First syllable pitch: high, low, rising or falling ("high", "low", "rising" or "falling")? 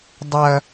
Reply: high